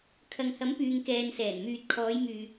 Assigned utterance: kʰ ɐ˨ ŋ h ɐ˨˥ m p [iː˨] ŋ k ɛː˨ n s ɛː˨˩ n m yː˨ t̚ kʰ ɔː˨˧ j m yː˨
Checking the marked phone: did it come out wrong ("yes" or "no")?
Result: yes